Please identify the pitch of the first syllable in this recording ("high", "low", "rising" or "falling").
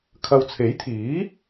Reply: low